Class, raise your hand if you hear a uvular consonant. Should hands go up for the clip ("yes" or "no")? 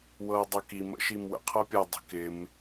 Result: yes